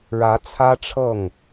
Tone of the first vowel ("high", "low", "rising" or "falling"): rising